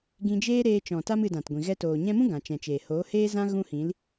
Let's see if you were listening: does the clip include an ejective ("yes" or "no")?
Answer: no